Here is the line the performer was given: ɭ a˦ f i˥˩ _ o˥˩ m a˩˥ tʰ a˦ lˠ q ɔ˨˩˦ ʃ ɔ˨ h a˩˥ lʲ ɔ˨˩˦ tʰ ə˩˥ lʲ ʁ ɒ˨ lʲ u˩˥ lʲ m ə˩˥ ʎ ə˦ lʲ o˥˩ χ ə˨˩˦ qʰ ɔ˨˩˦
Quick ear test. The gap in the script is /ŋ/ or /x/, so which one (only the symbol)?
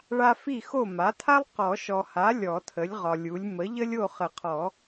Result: x